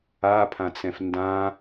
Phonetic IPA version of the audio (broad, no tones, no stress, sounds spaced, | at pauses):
a pʰ ã t͡s ɛ̃ f n d ã